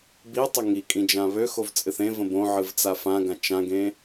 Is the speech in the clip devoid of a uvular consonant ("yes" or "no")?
yes